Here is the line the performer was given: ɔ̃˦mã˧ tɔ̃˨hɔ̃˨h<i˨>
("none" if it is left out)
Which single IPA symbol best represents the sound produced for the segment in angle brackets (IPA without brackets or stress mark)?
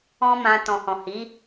i˨˦